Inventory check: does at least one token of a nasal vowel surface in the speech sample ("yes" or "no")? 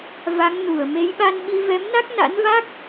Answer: no